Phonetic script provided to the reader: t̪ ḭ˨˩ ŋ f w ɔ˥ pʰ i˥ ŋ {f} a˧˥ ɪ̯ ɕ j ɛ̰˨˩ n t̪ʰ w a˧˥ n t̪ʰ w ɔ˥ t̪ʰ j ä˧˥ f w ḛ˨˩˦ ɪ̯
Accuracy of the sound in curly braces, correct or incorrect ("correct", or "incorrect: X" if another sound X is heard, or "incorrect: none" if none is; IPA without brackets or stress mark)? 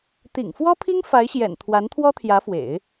correct